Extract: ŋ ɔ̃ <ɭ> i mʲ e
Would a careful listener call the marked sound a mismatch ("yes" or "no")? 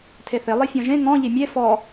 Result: yes